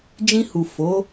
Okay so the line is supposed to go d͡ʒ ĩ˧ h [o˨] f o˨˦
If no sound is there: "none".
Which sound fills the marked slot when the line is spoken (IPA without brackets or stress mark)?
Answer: u˨